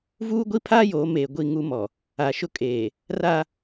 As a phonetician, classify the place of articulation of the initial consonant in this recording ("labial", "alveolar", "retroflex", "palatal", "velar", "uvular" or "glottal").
labial